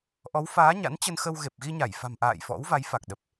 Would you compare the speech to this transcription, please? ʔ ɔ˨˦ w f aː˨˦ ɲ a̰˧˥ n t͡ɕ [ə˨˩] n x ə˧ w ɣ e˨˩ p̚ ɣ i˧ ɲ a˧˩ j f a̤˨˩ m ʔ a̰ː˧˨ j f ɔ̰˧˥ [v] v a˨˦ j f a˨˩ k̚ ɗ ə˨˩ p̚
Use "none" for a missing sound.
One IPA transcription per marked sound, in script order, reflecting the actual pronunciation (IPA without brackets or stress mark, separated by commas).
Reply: ə˧, w